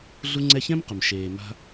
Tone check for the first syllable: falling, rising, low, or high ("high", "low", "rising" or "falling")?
high